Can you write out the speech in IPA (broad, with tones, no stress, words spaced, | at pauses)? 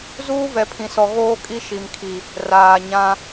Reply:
zuː˦vɛ˨pʰĩ˨sɔ˨ ɣoː˦kʼi˦ ʃi˨mkʰi˨ | raː˨ɲã˦